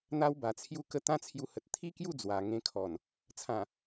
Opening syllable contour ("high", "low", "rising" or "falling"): high